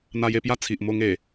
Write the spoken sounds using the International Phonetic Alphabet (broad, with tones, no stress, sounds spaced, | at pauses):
n̪ a˧ j e˧ p j a˥˧ t͡sʰ i˨ ʔ m o˧ ŋ e˨˩